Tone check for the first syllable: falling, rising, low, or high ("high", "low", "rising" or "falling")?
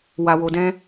low